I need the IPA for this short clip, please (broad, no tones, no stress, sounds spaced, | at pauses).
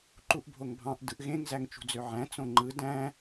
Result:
ǃ u ʔ bʱ o ŋ bʱ ɑ̃ ʔ d ɯ ʔ ɣ ẽ ŋ z æ ŋ t͡ʃ ṳ d͡z ø ʕ æ̃ t͡s õ ŋ͡ǃ ɯ d æ̃